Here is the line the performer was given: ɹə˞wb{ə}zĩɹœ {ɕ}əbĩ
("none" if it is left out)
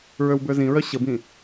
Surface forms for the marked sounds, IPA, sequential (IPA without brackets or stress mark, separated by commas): ə˞, ɕ